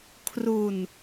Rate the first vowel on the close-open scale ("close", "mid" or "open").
close